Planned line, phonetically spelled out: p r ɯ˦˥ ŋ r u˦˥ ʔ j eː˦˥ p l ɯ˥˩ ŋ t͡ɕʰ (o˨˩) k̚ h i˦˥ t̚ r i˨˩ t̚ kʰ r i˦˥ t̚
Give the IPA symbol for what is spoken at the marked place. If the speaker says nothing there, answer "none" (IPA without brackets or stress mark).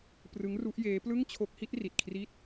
o˦˥